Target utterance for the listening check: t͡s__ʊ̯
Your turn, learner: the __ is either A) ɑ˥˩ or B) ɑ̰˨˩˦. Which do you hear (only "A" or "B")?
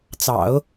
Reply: B